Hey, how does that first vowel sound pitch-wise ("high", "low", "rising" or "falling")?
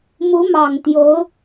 rising